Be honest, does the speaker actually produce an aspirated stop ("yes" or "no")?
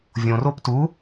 no